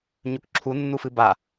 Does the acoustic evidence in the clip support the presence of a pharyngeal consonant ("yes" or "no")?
no